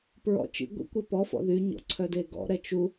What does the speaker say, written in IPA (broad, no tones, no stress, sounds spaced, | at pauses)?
p ɹ ɔ̰ t͡ʃ ḭ ɡʷ ḭ kʷ ɛ p ɔ f ɔ̰ ð y ɲ ɔ̰ ǀʰ œ d e ɡ ɔ̰ ɾ ɛ t͡ʃ u